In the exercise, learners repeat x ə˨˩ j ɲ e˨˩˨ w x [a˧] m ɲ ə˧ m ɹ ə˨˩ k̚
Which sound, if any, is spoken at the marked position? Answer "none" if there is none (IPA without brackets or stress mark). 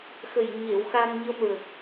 a˧